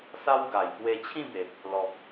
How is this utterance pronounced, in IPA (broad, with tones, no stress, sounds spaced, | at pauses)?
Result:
s a˦ w ɡ a˨˩ j k w e˧ t͡ɕʰ ĩ˥˧ b e˨ p̚ | l ɔ˨ p̚